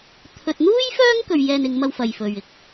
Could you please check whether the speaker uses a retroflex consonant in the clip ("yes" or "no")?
no